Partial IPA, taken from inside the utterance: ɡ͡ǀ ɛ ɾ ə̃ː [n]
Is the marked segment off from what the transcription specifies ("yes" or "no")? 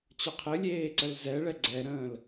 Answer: yes